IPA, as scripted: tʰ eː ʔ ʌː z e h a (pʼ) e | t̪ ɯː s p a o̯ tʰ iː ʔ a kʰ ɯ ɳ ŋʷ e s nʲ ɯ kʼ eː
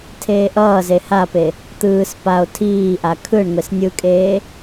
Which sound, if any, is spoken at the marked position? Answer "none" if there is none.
p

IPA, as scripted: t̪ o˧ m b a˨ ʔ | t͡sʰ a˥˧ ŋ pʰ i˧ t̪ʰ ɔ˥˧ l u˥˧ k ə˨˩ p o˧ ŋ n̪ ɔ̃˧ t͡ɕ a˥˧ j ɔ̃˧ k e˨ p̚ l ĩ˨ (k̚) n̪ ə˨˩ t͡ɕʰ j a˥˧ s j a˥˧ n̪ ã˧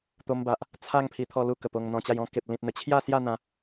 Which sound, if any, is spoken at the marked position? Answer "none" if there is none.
t̚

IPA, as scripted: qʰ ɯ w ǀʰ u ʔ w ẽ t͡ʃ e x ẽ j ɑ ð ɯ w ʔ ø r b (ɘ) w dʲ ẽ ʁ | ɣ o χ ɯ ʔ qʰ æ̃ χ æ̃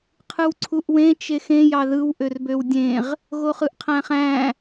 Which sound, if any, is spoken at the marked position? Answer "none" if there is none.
ø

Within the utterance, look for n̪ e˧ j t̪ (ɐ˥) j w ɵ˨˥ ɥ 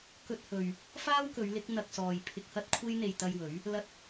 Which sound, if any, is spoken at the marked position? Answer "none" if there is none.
ɐ˧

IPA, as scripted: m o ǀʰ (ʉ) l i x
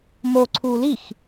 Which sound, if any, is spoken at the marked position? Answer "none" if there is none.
u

